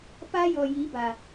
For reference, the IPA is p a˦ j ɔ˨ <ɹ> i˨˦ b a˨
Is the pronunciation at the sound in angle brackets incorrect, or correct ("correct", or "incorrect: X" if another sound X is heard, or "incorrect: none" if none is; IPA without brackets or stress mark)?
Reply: incorrect: j